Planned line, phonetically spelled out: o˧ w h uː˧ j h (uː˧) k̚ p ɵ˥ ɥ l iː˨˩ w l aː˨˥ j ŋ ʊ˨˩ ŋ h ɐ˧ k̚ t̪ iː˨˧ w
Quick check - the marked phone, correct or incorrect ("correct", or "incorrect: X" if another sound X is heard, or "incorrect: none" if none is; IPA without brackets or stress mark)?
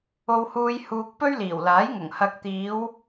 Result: correct